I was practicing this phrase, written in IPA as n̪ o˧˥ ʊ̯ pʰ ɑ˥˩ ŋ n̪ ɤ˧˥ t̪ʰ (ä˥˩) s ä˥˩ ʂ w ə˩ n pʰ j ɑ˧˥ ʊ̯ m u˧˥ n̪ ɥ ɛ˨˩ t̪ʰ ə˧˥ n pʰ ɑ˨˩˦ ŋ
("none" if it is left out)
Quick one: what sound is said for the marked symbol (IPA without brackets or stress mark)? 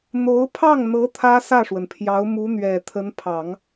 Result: ä˥